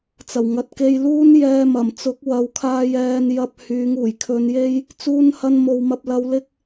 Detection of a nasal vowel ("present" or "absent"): absent